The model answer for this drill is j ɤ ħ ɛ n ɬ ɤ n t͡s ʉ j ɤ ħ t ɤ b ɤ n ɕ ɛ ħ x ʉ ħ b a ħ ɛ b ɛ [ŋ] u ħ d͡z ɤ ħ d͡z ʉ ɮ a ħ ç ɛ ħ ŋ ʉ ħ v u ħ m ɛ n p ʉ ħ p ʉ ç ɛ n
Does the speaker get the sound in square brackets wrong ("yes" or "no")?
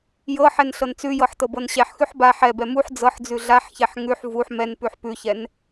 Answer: yes